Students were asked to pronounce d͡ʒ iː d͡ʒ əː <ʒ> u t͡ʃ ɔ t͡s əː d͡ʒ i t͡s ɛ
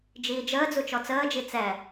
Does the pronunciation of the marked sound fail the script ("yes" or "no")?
yes